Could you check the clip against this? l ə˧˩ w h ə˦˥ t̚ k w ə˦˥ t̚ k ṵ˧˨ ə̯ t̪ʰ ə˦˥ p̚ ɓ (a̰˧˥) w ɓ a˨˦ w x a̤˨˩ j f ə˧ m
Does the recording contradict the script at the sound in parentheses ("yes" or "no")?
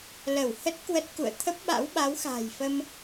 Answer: no